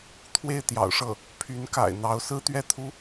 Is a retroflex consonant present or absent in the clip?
present